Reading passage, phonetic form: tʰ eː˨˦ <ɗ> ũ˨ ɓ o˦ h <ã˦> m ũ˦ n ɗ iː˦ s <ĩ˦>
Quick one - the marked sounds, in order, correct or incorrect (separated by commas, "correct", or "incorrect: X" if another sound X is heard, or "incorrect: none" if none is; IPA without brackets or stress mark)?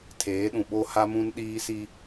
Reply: correct, incorrect: a˦, incorrect: i˦